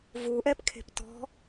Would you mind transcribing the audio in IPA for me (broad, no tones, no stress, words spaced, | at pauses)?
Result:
vuʔɛpkʰe̤p tɔ̤